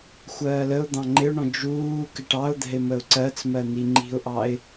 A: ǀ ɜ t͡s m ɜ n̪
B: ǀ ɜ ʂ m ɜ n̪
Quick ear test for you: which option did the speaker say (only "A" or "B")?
A